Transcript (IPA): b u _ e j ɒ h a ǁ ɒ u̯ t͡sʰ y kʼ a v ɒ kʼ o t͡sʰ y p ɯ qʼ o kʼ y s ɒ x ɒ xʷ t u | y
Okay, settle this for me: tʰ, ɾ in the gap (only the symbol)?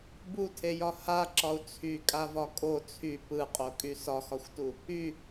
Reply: tʰ